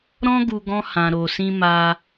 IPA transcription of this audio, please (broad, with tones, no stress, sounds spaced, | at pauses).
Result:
ɾ ɔ̃˦ ɡ u˧ ɡ ɔ̃˦ h ã˧ ɾ o˧ s ĩ˧ m a˧